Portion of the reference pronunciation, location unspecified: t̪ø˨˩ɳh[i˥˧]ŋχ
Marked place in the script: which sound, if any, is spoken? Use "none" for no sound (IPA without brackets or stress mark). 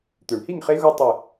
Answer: i˥˧